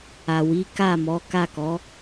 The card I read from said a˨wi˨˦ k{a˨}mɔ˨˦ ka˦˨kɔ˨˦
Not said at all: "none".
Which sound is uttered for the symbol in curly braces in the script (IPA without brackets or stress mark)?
a˦˨